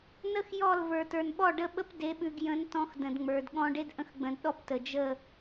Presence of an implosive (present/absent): present